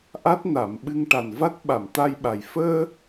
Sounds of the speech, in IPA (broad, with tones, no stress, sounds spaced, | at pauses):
ʔ a˦˥ t̚ n a˨˩˨ m ɓ ɨ˧ ŋ ʈ a˨˩ n v a˦˥ t̚ ɓ a˨˩˨ m t̪ a˧ j ɓ a˨˩ j f əː˧